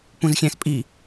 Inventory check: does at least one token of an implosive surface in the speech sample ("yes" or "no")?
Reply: no